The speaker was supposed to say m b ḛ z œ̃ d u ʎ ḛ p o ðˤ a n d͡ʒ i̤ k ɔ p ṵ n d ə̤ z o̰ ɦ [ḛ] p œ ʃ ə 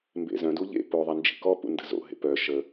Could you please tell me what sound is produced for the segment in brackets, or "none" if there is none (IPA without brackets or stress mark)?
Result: ḛ